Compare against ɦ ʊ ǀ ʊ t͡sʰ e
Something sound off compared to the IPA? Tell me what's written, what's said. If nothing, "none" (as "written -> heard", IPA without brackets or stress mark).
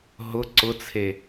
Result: none